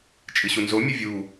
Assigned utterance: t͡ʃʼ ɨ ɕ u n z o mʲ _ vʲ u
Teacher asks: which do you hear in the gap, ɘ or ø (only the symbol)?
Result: ɘ